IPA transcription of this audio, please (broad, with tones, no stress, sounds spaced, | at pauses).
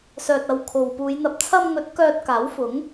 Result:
s œː˨ t̚ ɐ˨ w kʰ o˨ w p uː˨˧ j n̪ ɐ˨ p̚ t͡sʰ ɐ˧ m ŋ ɵ˨˥ t̚ k œː˧ t̚ k aː˨˥ w f ʊ˨˥ ŋ